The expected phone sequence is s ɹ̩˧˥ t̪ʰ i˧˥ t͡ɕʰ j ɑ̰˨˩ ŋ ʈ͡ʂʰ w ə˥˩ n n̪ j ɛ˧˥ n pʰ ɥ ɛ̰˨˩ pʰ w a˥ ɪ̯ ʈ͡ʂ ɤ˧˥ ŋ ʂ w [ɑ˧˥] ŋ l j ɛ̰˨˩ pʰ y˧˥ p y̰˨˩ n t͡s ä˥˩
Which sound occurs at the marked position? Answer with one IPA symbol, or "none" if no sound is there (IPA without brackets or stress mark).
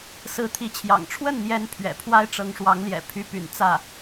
ɑ˧˥